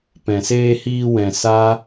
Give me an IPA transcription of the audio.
p ɛ̃˨ s eː˧ h iː˧ w ɛ̃˨ s a˦

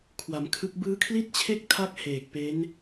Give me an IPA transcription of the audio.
kʰ w a˩˦ m kʰ ɯ˦˥ k̚ b ɯː˦˥ kʰ l i˥˩ t̚ t͡ɕʰ e˥˩ k̚ tʰ a˥˩ k̚ h eː˨˩ k̚ p e˦˥ n

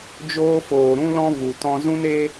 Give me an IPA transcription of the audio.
d͡ʒ oː˦ f oː˧ ɾ ũ˦ l ɔ̃˦ v u˧ t ɔ̃˦ z ũ˦ n e˦

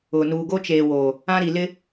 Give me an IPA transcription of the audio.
ʊ˨ n uː˨ ɡ o˦ t͡ʃ eː˨ w o˨ | ã˦ ɾ i˨ l ɪ˦

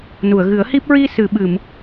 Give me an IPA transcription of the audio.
n u˨˩˨ ə̯ ɣ ɨ˨˩˦ ə̯ h i˦˥ p̚ ɹ i˧ s ɨ˨˩˨ ɓ ɨ˨˩˨ m

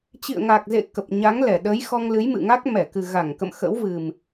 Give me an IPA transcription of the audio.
t͡ɕ ḭ˧˨ ə̯ ŋ a˨˩ k̚ z ḛ˧˨ k ə˨˩ p̚ ɲ a˨˦ ŋ l ɛ˧˩ ɗ ə˨˦ j x ɔ˧ ŋ l ɨ˨˦ j m ɨ̰˧˨ ŋ a˦˥ k̚ m ɛ˧˩ k ɨ˨˩ ɣ a˧˩ ŋ k ə̰˧˨ m x ə̰˧˥ w v ɨ˨˩ m

